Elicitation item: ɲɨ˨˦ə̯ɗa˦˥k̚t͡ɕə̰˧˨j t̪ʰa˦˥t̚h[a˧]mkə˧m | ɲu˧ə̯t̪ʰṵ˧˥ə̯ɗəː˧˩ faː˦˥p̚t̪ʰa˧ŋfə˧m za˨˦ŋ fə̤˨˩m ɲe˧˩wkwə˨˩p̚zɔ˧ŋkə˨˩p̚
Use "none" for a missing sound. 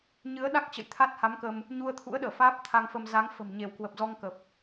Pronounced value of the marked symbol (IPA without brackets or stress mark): a˨˦